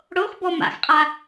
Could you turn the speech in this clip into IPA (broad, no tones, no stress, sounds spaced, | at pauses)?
ɽ o x b ɔ m a̰ x qʼ a